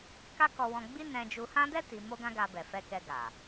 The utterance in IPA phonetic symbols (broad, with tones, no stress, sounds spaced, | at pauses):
k a˦ k ɔ˧ w ɔ̃˧ ɡ͡b i˦ n ɛ̃˧ d͡ʒ u˧ h ã˦ d ɛ˦ t i˧ m o˦ ɡ ã˦ ɡ a˧ b ɛ˨ f ɛ˧ k ɛ˧ ɡ a˨